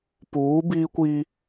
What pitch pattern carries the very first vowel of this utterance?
rising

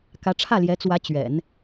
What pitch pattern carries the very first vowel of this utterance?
rising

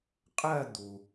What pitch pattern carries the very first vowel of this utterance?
falling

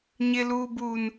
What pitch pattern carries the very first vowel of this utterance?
low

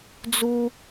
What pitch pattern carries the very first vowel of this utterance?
high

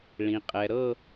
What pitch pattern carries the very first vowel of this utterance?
low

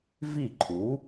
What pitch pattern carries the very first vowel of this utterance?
falling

